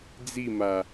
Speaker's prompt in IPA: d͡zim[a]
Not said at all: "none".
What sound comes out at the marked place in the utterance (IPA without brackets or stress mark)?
a